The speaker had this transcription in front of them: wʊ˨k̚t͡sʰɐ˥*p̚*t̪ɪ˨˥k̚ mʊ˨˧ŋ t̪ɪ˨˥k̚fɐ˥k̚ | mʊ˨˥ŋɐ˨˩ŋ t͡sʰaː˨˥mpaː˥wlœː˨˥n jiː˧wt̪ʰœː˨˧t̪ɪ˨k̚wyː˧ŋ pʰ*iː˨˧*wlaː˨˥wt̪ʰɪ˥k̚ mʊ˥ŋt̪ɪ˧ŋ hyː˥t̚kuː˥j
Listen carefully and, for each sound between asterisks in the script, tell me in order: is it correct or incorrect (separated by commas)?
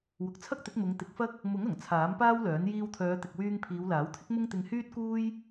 incorrect, correct